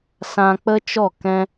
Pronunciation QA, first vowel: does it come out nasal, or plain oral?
nasal